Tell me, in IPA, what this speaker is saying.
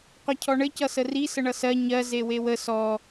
qʷ ʌ cʰ ɔ ɳ ɘ c ʌ s ə r i s ə ɳ ʌ s ɜ ɲ ɜ z e w e w ə s ɔ

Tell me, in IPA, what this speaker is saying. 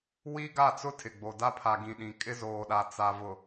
w i˦ ɡ a˦˨ t͡s ʊ˦ tʰ ɪ˨ ɡ͡b o˨ d a˦ pʰ a˨ ɡ ĩ˨ ɗ ĩ˨ kʼ ɪ˦ z oː˨ ɗ a˨ t͡s a˨ v ʊ˨

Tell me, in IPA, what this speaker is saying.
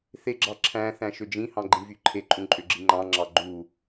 θ e ɡ͡ǁ ɑ ǁʰ æ̃ θ æ̃ ʃ ø d͡ʒ ĩ h ɑ̃ ɡ͡ǃ ĩ v y ǃʰ e ǃʼ ũ ǃʼ ø ɡ͡ǁ i ŋ͡ǃ ɑ̃ ŋ͡ǁ ɑ ɡ͡ǃ u

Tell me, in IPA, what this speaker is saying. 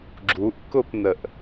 ɡ͡ǁ u ʔ k ʊ p n ə ʔ

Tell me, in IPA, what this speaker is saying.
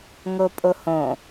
ŋ o pʼ o h õ

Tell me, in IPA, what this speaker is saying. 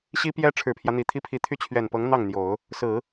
ɕ i˥ p j ɛ˥ ʈ͡ʂʰ ɻ̩˨˩ pʰ j ä˦ n̪ i˨˩ t̪ʰ i˥ pʰ i˧˥ t̪ʰ y˥˩ t͡ɕʰ ɥ ɛ˨˩ n p ɤ˧˥ ŋ n̪ ɑ˥˩ ŋ n̪ j o˨˩˦ ʊ̯ | s ɹ̩˨˩˦

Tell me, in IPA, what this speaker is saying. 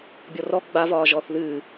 bʲ ɔ r ɔ ɡ͡b a v ɒː ʒ ɔː θ ð ɨː

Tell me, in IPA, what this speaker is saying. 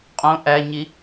qʼ õ ʔ æ ɲ i

